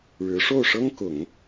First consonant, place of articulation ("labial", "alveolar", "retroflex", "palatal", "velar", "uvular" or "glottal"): retroflex